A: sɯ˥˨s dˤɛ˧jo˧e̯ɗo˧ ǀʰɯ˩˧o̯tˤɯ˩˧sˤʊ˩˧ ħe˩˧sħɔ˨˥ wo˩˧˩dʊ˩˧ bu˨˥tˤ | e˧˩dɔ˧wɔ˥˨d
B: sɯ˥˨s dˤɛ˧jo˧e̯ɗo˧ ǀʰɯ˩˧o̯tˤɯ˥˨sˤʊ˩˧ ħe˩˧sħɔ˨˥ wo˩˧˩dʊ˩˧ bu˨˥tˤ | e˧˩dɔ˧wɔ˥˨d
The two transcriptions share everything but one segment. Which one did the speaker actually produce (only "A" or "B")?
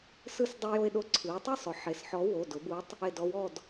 B